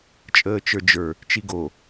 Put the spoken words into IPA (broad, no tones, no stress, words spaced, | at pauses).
t͡ʃʼəːt͡ʃə˞d͡ʒə˞ | t͡ʃiɡo